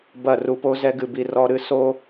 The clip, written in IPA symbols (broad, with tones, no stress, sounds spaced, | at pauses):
b ɐ˦˨ r u˧ p o˦ z ɛ˦ ɡ ɨ˧ b i˧ r ɔ˧ ɾ ɨ˧ s o˦